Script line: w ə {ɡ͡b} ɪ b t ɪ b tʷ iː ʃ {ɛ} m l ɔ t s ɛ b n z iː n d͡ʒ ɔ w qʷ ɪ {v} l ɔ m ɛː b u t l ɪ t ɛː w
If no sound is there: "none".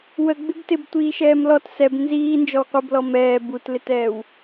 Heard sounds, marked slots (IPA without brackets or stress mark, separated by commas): ɡ͡b, ɛː, b